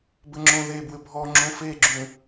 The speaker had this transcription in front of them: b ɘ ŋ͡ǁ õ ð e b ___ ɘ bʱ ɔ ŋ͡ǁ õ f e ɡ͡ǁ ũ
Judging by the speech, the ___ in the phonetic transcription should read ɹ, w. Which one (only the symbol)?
w